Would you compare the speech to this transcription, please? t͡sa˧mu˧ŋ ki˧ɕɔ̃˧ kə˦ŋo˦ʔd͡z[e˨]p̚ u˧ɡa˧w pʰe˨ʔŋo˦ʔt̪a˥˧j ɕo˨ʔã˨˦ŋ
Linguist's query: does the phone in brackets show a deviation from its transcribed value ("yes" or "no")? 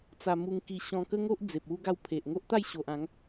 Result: no